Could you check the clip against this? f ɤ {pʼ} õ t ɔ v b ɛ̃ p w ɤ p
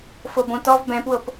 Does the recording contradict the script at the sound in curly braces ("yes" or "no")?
yes